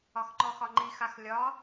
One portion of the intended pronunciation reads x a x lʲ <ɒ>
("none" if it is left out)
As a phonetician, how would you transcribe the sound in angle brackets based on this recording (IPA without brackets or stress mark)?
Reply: ɒ